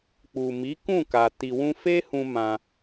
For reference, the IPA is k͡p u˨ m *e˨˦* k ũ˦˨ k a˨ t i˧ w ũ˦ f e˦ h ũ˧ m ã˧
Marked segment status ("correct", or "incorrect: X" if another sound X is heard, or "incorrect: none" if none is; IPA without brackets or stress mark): incorrect: i˨˦